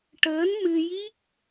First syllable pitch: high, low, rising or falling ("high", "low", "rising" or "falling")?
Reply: rising